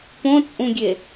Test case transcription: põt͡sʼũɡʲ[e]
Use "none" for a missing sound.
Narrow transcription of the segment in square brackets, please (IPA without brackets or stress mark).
e